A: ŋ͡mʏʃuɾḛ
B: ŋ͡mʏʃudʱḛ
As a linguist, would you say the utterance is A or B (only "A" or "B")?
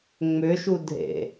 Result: B